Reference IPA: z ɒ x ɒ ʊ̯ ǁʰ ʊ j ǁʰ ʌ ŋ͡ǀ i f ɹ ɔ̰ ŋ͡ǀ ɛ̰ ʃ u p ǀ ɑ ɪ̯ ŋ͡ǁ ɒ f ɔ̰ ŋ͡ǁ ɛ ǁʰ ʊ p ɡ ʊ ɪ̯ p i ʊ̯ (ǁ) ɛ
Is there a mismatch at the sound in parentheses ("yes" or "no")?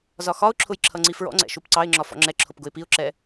no